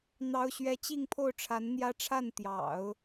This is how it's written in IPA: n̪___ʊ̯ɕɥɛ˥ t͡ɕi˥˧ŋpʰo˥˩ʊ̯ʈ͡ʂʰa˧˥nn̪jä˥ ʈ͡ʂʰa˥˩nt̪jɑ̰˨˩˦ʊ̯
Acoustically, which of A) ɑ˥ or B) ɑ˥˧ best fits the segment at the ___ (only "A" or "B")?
A